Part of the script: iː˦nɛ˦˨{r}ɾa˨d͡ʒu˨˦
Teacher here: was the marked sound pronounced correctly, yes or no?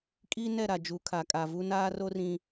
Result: no